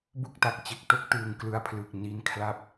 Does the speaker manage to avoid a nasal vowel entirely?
yes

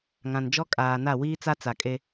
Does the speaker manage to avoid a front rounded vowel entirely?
yes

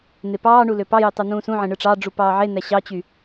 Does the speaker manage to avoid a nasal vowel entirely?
no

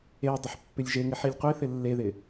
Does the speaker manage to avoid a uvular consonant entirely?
no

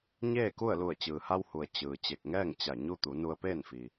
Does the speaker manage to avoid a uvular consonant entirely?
yes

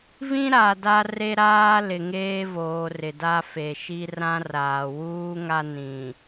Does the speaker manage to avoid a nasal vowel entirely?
no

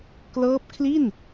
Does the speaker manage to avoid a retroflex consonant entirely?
yes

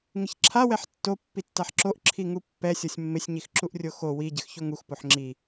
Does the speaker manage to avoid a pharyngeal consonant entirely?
no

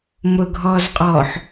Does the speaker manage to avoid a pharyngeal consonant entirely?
no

